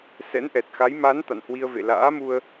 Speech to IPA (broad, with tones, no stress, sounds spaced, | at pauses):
s ɛ̰˧˥ n ʔ ɛ˨˩ t̚ x a˨˦ j m a˨˦ n t̪ a̰˧˨ n h w i˧ ə̯ v ḛ˧˨ l a̰ː˧˥ m u˧ ə̯